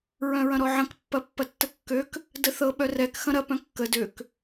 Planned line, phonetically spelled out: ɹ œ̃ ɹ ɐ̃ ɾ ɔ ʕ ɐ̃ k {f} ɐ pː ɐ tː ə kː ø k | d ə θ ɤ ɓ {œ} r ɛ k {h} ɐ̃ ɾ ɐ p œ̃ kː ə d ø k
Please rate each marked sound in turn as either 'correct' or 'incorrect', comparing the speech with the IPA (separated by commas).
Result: incorrect, correct, incorrect